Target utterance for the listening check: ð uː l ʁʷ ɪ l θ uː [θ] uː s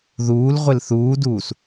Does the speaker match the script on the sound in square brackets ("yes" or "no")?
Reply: no